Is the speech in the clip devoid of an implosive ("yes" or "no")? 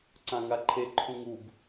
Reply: yes